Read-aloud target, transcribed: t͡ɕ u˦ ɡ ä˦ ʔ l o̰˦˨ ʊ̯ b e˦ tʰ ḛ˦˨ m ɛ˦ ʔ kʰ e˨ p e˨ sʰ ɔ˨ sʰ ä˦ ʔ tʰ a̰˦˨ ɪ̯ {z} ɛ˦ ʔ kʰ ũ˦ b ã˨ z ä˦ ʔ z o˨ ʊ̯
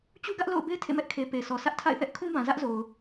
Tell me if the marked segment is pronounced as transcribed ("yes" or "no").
no